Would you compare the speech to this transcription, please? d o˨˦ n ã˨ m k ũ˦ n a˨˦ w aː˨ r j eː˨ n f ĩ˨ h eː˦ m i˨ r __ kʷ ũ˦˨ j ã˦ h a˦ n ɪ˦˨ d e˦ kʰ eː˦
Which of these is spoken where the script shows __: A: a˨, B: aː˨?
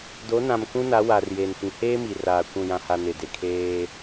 B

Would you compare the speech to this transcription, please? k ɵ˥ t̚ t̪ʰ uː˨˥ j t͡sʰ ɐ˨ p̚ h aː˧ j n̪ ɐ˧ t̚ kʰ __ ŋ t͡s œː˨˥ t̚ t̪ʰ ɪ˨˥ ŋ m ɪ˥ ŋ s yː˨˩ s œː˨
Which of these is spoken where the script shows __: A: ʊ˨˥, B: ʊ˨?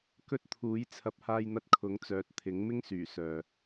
A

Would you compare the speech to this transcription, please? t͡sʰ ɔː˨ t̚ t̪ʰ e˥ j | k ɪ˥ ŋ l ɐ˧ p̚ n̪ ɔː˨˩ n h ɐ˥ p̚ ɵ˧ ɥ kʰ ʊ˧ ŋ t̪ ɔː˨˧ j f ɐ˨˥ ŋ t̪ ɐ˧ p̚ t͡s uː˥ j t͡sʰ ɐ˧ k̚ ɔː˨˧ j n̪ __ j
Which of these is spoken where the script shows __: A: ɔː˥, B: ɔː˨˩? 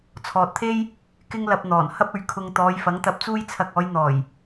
B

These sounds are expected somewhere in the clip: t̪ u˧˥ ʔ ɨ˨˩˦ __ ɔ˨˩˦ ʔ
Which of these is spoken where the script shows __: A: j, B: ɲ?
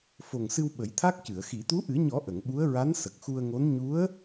B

